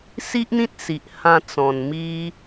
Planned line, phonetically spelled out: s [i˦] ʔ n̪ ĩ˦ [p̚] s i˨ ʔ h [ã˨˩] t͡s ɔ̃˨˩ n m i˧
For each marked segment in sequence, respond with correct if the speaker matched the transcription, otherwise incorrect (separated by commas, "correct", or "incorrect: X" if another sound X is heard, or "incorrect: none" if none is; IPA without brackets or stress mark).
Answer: correct, incorrect: t̚, incorrect: ã˧